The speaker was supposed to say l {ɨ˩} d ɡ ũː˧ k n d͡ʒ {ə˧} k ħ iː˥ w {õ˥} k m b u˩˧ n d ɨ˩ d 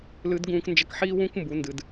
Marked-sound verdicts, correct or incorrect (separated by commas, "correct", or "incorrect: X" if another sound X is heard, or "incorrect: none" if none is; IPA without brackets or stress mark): incorrect: ɨ˧˥, correct, incorrect: ũ˥